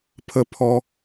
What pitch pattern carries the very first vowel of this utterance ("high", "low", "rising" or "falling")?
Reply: high